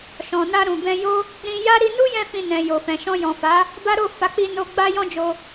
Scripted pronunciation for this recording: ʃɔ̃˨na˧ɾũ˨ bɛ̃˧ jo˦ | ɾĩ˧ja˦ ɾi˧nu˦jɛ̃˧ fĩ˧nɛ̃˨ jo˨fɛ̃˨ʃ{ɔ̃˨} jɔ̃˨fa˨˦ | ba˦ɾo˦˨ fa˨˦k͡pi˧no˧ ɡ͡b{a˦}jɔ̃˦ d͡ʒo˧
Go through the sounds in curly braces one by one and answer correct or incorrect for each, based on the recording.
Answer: incorrect: ɔ̃˧, correct

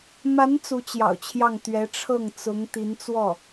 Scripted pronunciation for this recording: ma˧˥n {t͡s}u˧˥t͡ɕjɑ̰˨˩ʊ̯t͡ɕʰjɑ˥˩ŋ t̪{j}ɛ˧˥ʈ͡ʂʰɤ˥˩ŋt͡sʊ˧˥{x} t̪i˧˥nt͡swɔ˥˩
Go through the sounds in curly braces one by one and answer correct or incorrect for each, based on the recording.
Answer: correct, incorrect: ɥ, incorrect: ŋ

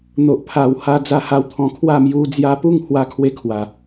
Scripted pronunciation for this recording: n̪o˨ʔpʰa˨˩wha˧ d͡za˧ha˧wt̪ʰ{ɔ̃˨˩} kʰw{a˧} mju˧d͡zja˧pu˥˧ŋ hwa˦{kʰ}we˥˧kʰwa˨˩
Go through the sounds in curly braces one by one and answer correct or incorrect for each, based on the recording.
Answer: correct, incorrect: a˥˧, correct

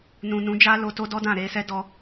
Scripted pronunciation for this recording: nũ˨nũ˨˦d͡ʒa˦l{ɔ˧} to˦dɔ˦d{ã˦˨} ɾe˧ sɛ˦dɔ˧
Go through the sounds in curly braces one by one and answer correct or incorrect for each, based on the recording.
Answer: incorrect: o˧, correct

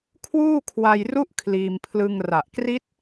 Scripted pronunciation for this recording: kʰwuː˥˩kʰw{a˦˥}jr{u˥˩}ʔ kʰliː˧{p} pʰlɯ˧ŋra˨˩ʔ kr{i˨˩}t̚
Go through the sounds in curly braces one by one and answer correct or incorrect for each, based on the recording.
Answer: incorrect: a˧, correct, incorrect: m, incorrect: i˦˥

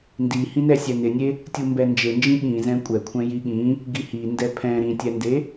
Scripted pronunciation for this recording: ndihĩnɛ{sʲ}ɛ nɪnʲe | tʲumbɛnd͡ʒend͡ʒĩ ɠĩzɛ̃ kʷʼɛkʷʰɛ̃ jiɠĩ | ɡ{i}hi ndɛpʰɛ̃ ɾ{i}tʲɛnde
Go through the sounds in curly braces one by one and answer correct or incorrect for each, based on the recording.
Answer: correct, correct, incorrect: ĩ

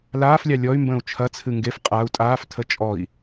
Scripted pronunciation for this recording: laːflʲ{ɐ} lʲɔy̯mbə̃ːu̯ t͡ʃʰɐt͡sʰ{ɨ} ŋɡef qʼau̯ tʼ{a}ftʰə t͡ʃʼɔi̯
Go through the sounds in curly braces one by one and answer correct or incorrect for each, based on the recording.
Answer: incorrect: ɑ, correct, incorrect: aː

